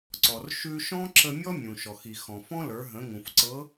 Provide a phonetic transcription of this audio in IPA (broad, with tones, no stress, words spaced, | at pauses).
ǀɔ˩r ʃʉ˧ ʃɔ̃˥ǁə˧ mʲɔ˥mʲũ˩ʃɔ˩x i˩xɔ̃˩fɔ̃˥lə˞˩˧ ɦə̃˩˧ŋũ˩f ǀɤ˧˥